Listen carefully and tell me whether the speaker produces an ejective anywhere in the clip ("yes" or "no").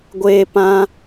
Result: no